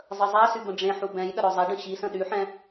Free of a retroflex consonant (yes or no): no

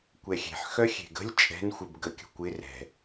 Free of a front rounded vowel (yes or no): no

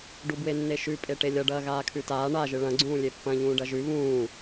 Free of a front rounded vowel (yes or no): yes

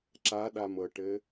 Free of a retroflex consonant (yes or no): no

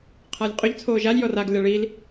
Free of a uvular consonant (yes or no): no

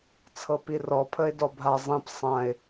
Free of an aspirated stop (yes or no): no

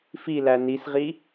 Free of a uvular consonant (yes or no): no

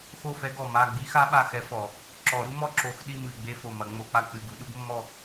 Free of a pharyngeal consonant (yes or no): yes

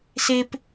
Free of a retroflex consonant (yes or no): yes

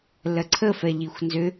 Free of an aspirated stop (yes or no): no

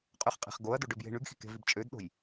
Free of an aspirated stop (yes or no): yes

